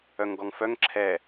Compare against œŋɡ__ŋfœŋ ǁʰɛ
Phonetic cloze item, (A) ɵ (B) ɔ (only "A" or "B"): B